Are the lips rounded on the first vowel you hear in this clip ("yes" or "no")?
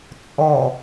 yes